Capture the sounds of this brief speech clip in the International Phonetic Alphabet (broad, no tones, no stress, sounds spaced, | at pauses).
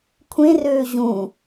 kʷʰ ẽ r øː ʑ ũ